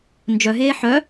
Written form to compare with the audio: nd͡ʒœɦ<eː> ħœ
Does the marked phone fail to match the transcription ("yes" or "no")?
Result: no